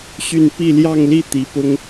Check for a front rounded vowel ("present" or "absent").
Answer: present